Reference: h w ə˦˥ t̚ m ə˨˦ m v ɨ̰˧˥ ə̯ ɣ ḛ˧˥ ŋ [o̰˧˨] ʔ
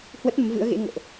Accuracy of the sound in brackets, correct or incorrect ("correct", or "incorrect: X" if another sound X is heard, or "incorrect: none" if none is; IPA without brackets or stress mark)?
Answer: correct